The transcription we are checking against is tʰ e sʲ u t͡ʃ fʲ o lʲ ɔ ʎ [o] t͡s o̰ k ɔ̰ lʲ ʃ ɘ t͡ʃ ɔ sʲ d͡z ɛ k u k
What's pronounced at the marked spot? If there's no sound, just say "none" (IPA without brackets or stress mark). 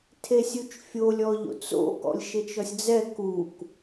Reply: o̰